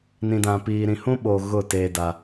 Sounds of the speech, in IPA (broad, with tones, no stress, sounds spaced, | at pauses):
n ĩ˨ d ã˨ p iː˨ ɾ ĩ˨ h ũ˦ ɓ o˨ ɣ ʊ˦˨ t eː˦ d a˦